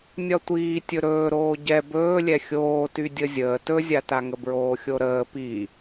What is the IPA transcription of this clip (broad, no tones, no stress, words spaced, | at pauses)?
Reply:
nʲɒtʷiː tʲɵɾɵː ɾoːɟɛ bɵːlʲɛ xʲoːty dʲəzʲəː tɵzʲataŋə bɹoːxʲoɾəː pi